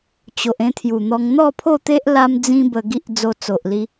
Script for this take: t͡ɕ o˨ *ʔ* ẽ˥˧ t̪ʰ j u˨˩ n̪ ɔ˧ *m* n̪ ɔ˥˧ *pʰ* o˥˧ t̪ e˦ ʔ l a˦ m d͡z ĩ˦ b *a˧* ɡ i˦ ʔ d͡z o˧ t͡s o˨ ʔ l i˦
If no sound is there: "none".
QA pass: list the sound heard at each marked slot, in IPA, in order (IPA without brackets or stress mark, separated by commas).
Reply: ʔ, ŋ, pʰ, ə˧